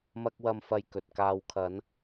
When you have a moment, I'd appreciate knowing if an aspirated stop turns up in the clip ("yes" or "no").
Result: yes